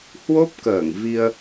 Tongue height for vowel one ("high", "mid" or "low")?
mid